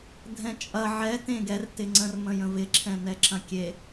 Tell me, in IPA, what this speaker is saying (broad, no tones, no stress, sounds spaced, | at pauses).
dʱ ɛ̃ t͡ʃʼ ɐ ʕ ɛ t ẽ ɡ ɛ r t ɪ ŋ͡ǀ ə̃ r m ə̃ j ə̃ v ɪ ǁʰ ɛ̃ n ɛ ǁ ɐ̃ kʲ e